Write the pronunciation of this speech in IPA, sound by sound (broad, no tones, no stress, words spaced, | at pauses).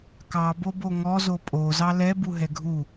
kɑbobo ŋɔzo pʼozɑ lɛbuɦɛ ɡʱu